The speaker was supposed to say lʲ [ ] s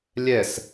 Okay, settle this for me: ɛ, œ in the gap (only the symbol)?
ɛ